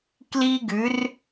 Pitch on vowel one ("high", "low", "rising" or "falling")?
high